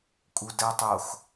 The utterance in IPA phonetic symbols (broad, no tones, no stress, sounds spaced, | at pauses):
kʼ u d ɜ tˤ o x